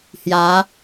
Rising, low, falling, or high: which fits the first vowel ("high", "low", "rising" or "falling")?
rising